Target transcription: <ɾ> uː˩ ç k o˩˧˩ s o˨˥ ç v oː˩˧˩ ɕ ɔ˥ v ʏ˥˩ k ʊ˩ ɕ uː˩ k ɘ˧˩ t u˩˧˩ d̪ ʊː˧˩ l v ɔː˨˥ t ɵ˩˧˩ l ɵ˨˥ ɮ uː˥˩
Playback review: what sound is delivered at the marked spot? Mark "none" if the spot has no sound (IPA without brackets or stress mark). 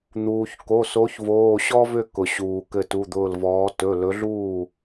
n̪